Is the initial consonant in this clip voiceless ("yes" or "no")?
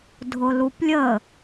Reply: no